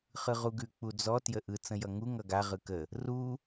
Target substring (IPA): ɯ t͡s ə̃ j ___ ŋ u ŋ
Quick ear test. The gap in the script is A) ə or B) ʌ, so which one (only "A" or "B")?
B